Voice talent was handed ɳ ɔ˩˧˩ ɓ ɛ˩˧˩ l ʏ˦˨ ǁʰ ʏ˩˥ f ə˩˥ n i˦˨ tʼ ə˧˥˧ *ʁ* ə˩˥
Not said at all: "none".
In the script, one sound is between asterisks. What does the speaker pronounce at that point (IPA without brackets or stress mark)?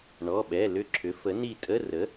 r